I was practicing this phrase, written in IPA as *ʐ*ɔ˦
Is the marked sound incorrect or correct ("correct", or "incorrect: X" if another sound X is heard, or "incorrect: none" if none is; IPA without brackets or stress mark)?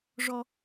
correct